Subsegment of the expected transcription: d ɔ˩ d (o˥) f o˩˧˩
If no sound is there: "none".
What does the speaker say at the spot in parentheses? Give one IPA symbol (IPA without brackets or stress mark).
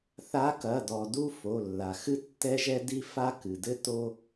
u˥